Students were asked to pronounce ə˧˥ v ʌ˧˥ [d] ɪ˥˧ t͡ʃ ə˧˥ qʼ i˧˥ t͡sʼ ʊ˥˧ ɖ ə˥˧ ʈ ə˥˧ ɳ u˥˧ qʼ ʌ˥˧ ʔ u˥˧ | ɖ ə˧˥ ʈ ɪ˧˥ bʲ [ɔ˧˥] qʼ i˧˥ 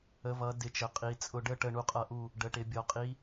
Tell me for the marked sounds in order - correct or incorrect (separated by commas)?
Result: correct, correct